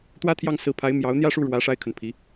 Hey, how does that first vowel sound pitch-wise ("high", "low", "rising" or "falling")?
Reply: high